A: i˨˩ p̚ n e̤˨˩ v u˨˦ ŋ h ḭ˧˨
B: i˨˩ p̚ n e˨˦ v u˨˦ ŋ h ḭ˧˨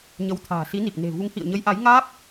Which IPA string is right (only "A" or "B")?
A